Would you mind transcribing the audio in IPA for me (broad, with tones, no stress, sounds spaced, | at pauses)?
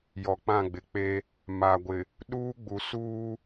j ɔ˨ k͡p ã˦˨ ɡ͡b ɪ˨˦ k͡p e˦ | m a˨ ɡʷ ɪ˨ | ɗ uː˦ ɡ͡b u˨ s uː˦